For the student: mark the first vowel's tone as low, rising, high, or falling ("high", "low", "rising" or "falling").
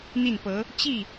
falling